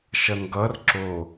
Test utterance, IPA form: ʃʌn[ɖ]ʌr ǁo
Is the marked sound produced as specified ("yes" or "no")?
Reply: no